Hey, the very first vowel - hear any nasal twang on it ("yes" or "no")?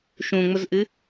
yes